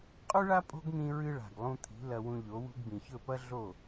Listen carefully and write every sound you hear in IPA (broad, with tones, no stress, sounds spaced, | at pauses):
qʼ ʉ˥ ɭ a˥ pʼ o̤˥ ɡ n̪ ĩ˧ ɹ ɨ˧ ɭ a̤˩ ɡ lˠ ũ˧ t̪ʰ i̤˩˥ l ɐ˧ w ũ˧ ʎ o˩˥ w ṳ˧ ɡ b ĩ˩ ç ɵ˥˩ p ɐ˥ ɮ o˥˩